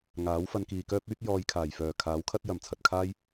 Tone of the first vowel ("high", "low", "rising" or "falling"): rising